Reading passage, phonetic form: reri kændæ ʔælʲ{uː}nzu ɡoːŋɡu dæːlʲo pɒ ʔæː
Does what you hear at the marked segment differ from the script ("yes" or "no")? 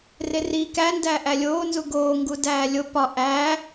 yes